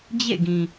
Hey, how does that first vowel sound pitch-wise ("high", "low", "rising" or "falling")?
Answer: falling